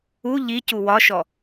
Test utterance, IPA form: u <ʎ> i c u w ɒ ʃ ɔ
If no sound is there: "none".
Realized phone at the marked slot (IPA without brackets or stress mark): ʎ